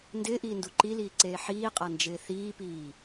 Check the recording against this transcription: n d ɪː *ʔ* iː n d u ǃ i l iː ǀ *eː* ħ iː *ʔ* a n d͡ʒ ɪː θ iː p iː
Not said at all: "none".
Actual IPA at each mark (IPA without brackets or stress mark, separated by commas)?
ʔ, eː, qʼ